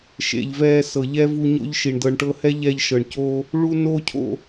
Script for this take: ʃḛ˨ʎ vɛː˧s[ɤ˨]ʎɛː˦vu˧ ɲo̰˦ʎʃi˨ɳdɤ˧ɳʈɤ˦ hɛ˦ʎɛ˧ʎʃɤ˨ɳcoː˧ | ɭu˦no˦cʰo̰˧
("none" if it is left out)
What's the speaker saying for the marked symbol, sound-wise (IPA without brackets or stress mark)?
ɤ˨